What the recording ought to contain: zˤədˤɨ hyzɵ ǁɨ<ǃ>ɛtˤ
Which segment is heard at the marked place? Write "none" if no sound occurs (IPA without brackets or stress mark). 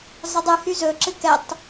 k